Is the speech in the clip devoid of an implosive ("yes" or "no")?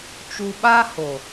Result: no